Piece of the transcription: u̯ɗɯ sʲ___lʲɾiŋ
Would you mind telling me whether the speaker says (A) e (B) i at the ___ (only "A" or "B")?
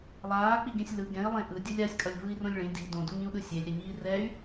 A